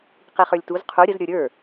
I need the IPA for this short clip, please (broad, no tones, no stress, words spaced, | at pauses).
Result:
qiχə˞lʲtuz qʰu ɾʲəz ɾʲə˞ɾʲə˞